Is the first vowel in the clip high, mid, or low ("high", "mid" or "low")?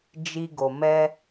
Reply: high